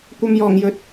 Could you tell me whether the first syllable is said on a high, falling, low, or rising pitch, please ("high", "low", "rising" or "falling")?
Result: low